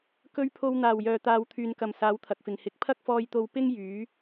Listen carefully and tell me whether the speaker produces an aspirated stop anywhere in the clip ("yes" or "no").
yes